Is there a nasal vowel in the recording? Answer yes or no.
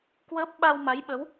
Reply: no